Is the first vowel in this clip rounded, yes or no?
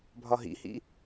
yes